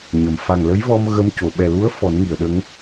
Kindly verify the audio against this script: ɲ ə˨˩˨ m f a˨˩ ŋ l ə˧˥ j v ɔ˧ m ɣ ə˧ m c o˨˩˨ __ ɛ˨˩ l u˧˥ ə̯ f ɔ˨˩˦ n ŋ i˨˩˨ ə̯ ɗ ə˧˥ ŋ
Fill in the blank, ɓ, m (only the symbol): ɓ